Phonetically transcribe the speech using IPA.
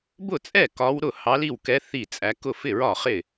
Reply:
b ʊ˥˩ t͡sʼ ɛ˥˩ k ɒ˧˥ w ɾ ʊ˥˩ h ɑ˧˥ l i˥˩ w k ɛ˧˥ θ i˥˩ t͡sʼ æ˧˥ k ʊ˥˩ f ɪ˥˩ ɹ ɒ˥˩ χ ɪ˥˩

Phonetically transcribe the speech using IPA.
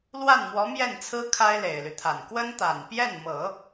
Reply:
l w a˥˩ n m w ɔ˧˥ m j ɛ˥˩ n t͡sʰ ɹ̩˥ kʰ a˥ ɪ̯ l e˨˩ ɪ̯ l y˦ t̪ʰ a˨˩ n k w ə˥ n t̪ a˨˩ n p j ɛ˥˩ n m ɤ˨˩˦

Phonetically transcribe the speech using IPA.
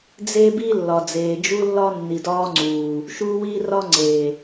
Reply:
d͡z e˦ b i˦ lː ɒ˨ d͡z eː˨ d͡ʒ u˦ lː ɒ˦ nː i˨ d ɒː˦ ŋ͡ǀ uː˨ | ʃ uː˦ w iː˦ r ɒ˦ ŋ͡ǀ eː˨

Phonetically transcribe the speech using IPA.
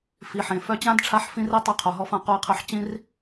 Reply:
f i˩ ħ ẽ˩ f œ˧ t͡ɕ ã˥ d ʈ͡ʂʰ a˧ ħ f ĩ˧ r i˧ tˤ ø˧ qʰ o˩ ɦ ɔ˧ f ã˧ q o˧ i̯ qʰ œ˧ ħ t͡ɕ ĩ˥ r

